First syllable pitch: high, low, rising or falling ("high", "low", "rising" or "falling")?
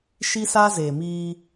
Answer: high